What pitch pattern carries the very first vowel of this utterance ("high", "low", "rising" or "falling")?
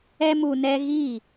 high